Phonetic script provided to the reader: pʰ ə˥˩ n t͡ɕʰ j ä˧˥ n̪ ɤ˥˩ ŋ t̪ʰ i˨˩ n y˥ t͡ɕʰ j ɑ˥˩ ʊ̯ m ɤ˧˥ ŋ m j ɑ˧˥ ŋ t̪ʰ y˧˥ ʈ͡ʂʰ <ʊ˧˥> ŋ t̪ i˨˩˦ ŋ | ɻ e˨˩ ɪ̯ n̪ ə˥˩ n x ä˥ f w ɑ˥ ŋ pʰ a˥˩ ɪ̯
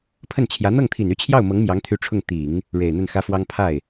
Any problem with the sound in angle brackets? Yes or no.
yes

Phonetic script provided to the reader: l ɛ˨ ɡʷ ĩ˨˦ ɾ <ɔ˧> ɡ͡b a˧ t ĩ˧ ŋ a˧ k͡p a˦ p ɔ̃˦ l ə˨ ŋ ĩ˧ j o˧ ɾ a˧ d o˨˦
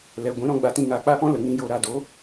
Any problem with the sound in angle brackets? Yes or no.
yes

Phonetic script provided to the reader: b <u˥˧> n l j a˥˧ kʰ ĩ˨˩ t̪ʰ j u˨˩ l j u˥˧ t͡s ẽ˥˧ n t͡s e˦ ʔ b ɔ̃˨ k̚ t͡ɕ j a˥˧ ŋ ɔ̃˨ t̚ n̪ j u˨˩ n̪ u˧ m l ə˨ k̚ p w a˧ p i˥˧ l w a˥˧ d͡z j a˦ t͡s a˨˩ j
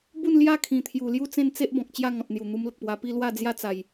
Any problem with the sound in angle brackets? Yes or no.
no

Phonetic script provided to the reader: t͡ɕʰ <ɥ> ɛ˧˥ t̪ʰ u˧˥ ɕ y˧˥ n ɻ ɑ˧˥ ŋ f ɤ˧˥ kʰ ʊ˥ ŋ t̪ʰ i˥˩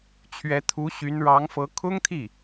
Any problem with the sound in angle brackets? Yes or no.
no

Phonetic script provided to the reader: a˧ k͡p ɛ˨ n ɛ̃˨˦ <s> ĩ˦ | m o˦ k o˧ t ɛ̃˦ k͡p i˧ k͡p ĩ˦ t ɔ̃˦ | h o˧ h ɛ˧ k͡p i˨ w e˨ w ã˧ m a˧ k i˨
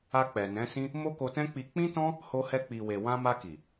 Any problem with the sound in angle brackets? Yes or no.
no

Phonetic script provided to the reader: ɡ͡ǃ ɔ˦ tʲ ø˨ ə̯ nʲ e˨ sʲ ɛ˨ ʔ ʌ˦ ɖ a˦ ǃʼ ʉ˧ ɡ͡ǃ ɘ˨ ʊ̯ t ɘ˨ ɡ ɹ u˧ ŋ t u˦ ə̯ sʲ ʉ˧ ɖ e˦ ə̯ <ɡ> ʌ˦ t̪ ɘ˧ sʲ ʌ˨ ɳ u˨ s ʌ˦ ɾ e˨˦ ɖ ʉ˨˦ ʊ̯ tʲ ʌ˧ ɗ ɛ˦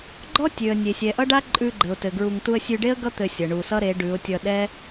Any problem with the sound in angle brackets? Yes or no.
no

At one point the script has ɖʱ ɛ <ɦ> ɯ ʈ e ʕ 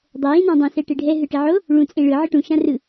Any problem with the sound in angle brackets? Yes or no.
no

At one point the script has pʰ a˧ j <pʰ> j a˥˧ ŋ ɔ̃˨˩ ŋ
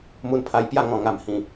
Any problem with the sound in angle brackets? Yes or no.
yes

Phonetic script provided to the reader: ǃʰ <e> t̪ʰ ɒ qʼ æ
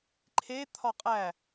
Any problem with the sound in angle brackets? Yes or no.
no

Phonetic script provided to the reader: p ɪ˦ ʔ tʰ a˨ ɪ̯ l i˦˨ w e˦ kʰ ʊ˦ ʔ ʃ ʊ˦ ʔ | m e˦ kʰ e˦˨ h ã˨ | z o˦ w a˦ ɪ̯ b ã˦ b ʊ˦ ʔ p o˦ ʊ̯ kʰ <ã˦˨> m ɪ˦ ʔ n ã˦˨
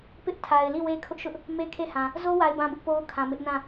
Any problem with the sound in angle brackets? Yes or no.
yes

